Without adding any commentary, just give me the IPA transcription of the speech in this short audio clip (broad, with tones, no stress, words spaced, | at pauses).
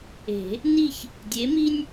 e̤˨˩˦ | ni˥˨ç | dʲe˨˥mi˥nʲ